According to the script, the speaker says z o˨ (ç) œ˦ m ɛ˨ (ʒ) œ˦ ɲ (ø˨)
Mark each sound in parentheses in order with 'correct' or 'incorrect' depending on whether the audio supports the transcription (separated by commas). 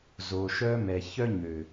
incorrect, incorrect, correct